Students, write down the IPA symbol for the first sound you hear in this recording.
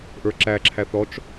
ʔ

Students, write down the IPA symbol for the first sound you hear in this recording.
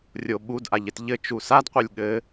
rʲ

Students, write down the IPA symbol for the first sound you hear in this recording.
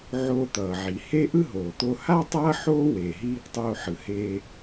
ʕ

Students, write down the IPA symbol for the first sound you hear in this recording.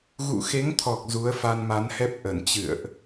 ɣ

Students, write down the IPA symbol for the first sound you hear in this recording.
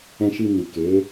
ɛ̃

